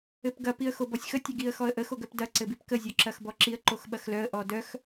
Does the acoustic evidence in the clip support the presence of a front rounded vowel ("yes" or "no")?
yes